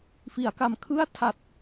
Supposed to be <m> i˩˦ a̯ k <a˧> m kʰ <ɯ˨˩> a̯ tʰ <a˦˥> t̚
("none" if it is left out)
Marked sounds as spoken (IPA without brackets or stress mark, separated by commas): f, a˨˩, ɯ˥˩, a˨˩